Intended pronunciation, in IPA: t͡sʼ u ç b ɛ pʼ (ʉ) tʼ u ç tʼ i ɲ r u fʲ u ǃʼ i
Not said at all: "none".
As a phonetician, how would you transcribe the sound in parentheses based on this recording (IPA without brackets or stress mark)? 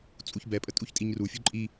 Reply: ə